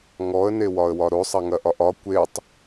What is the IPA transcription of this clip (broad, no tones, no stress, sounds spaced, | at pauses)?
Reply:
ŋ ɔ ə̯ n e w ɒ ə̯ w ɒ ɾ o sˤ ɐ ŋ ɐ ʔ ɒ ʔ ɒ kʷ e tˤ